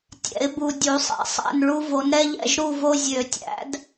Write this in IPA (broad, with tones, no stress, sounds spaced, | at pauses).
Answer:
tʲ ɛ̰˨˩˦ ɪ̯ b u˨ dʲ u˨˩˦ sˤ ɛ̰˩˥ sˤ æ̰˥˨ n ɭ u˦ v o˩˥ n ɾ ɛ˦ ʎ ɛ̰˥˨ ʒ ɾ u˥˨ v o˦ zʲ ø˨˩˦ tʲ æ̰˩˥ d